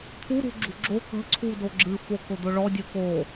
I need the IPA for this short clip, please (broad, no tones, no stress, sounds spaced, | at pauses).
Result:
t̪ʰ u ɾ ṳ ɡ͡ǁ ṳ ɡ͡ǁ o k ə̤ ǀʰ u d o ɡ͡ǁ ɨ f o k ʊ d̪ ʊ ɭ ɔ dʲ ɨ k o